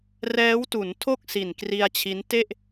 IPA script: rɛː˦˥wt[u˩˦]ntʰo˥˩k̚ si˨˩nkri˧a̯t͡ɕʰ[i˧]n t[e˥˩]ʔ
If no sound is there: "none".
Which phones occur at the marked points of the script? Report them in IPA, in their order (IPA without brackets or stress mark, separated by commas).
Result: u˩˦, i˦˥, e˥˩